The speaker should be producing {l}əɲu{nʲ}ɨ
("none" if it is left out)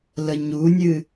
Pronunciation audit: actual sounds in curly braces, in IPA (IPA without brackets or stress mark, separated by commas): l, nʲ